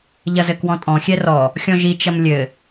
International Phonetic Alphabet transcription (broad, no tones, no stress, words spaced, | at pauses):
ʎɐzɘkwɔ̃tʼɔ̃ xʲɛrɔ | xʲɔ̃ʒi t͡ʃɐmlʲɘ